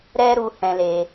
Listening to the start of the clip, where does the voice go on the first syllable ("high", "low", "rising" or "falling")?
high